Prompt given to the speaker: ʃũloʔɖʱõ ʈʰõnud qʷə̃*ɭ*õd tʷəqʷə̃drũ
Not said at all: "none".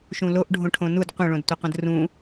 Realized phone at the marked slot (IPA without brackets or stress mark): ɭ